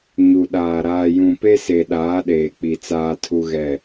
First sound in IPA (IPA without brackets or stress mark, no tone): ɲ